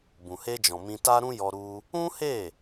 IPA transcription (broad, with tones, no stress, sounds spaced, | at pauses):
b ũ˨ h e˧ d͡ʒ ɔ̃˨ m ĩ˧ t a˦ ɾ ũ˦ j ɔ˧ ɾ u˧ | ũ˦ h e˦˨